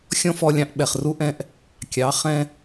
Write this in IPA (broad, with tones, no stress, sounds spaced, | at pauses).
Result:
xʲ ɔ̃˥ f ɔ˧ lʲ ɑ̃˧ ʔ ɓ ɛ˩ χ r u˧˥ ʔ ɛ̃˧˥ ʔ | kʲ ɑ˩˧ χ ɛ̃˧